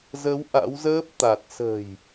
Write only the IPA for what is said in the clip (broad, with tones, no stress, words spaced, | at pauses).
zə˨˦w ʔa̰˧˥wzəː˦˥p̚ t̪a˨˩t̚ sə̤˨˩j